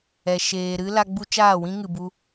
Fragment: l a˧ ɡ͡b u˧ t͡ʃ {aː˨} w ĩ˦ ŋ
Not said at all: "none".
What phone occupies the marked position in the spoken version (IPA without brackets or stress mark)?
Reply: aː˦˨